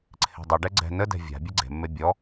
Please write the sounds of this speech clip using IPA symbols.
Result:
ǀʰ e̤ dˤ ɤ ɖ ɛ ɡ͡ǀ ɛ̤ n ə d ɛ̤ vʲ a̤ bʲ e ɡ͡ǀ e̤ mː e bʲ ɔ

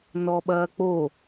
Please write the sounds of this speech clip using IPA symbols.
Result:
n ɔ ɓ ɐː k͡p o

